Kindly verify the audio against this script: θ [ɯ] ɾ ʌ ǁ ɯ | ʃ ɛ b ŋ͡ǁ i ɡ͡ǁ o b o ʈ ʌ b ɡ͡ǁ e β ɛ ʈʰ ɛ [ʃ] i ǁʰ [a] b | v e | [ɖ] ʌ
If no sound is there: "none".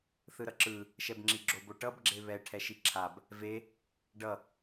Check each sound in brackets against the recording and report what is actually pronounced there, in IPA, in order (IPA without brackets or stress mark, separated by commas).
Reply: ɯ, ʃ, a, ɖ